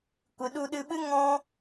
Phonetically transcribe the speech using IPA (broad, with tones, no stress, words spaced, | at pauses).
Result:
kʷɨ˨ɗu˧ɗɨ˧ɓɨ˦ ŋɔ̃˦